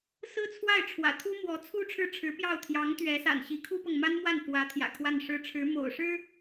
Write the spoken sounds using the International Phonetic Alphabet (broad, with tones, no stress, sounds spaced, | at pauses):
s ɹ̩˥ t͡sʰ w a˥˩ ɪ̯ ʈ͡ʂʰ w ä̰˨˩ t̪ʰ u˥ m w ɔ˧˥ t͡sʰ u˥ ʈ͡ʂʰ ɻ̩˥˩ ʈ͡ʂʰ ɻ̩˧˥ p j ɑ˥˩ ʊ̯ t̪ʰ j ɑ˧˥ ŋ t̪ ɥ ɛ˧˥ s a̰˨˩ n ɕ i˧˥ kʰ u˥ p ɤ˨ ŋ m a˥ n m w a˥˩ n f w ä˧˥ t̪ʰ j ä̰˨˩ kʰ w a˥˩ n ʂ ɻ̩˥ ʈ͡ʂʰ ɻ̩˧˥ m o̰˨˩ ʊ̯ ʂ ɻ̩˥